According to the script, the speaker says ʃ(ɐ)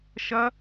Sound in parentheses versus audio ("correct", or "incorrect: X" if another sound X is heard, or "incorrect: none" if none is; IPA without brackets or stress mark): correct